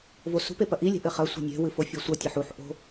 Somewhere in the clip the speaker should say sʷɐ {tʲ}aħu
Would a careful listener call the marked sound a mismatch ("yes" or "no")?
no